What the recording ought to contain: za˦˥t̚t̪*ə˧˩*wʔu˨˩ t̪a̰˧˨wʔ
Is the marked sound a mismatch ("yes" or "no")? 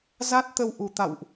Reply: yes